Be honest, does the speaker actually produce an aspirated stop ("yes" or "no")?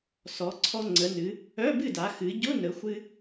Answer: yes